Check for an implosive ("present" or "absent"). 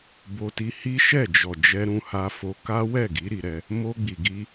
absent